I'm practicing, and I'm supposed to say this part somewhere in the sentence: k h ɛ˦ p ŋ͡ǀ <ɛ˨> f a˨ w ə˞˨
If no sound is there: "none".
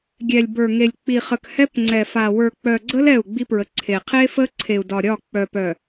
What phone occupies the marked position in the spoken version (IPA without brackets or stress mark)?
ɛ˨